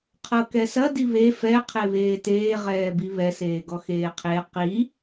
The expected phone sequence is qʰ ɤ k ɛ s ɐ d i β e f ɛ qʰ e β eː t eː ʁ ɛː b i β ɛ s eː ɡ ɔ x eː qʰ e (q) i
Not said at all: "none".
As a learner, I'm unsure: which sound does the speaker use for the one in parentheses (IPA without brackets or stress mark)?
q